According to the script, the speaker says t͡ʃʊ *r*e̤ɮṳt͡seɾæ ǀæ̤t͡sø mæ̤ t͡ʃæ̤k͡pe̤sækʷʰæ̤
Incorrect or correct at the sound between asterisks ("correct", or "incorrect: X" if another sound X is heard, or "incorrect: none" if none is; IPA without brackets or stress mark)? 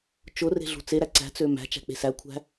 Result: correct